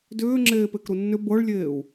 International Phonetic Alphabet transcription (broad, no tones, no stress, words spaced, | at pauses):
dʏːŋ͡ǁeːpekɾu nːʏ bɤɭlʲeːu̯